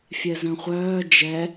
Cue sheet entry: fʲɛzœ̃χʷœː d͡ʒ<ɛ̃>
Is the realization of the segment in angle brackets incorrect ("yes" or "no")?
yes